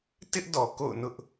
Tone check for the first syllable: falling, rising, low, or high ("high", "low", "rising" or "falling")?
high